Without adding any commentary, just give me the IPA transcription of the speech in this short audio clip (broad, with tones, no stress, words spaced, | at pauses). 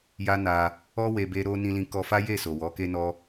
ja˦na˧ | ɔ˦ we˧be˦ ɾo˧ nĩ˦lĩ˦kɔ˦ fa˦je˦˨ so˨wɔ˨˦ke˦nɔ˦